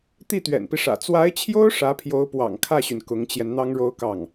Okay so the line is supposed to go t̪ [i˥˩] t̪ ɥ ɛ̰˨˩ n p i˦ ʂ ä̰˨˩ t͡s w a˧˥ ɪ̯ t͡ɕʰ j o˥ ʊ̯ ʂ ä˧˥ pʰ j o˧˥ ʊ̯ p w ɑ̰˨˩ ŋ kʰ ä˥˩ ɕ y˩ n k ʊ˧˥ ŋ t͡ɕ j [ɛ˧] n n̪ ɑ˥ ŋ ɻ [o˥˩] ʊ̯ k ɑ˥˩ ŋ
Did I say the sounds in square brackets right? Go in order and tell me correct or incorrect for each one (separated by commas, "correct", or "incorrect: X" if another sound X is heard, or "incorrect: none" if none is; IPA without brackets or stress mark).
correct, correct, incorrect: o˥